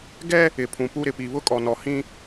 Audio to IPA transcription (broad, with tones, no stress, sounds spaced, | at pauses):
ɡ ɛ˦ | ɪ˨ pʰ ũ˨ p u˦ ɾ ɪ˨ p i˨ β ʊ˦ kʼ ɔ˨ n ɔ˨ h ĩ˦